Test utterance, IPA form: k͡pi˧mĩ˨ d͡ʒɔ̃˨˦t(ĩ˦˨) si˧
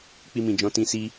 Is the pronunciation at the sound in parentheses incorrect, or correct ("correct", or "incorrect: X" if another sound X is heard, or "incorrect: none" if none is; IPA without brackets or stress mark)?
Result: incorrect: ĩ˧